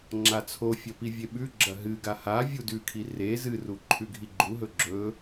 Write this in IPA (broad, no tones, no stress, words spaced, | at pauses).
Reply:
ŋ͡ǁat͡sʰofʲɐ pivʲeɓʉɡ͡ǁɐ ɦɨɡa ha vʲudʉkʰi re zɨru ǃʰʉɡʱiɡ͡ǃuɦɵ ɡ͡ǁɵ